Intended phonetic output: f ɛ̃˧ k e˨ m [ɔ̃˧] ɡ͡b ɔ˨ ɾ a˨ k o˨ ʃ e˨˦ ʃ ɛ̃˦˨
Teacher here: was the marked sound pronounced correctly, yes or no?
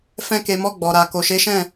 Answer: no